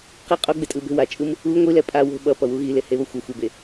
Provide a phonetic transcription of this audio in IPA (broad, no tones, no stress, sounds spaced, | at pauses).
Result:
q i qʼ o ɡ͡b e tʼ ɯ b e̤ w a t͡ʃʼ ɯ m | u ŋʷ i l ɛ pʼ a w o̤ ɓ ʌ p ʌ w u ɣ i l e h e β ʌ xʷ ʌ xʷ e b e